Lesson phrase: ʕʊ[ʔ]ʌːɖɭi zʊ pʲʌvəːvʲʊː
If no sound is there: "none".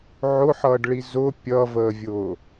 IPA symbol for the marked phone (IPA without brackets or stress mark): ħ